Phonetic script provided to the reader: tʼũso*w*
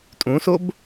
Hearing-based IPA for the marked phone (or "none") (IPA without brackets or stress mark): b